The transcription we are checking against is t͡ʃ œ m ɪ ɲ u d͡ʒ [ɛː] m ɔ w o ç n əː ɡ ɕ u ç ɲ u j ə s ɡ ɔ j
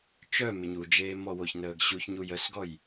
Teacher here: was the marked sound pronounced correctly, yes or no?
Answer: no